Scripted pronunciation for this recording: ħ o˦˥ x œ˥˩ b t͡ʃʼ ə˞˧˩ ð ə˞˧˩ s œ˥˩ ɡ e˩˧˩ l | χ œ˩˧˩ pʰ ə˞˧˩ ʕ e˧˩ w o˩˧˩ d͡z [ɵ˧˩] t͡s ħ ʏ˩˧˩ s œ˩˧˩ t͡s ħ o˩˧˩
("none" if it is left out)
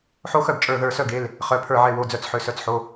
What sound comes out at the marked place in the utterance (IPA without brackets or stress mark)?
œ˧˩